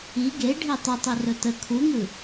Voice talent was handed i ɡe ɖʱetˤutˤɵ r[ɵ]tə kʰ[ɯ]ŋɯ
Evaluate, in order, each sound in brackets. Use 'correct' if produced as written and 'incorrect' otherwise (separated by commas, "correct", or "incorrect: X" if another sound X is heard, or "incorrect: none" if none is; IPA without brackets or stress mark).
correct, incorrect: u